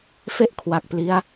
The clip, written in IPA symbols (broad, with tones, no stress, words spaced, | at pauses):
fe˥˩ʔkʰwa˨˩k̚pli˦˥a̯